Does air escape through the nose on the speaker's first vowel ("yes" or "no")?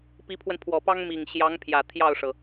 no